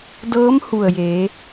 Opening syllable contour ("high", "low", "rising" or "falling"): rising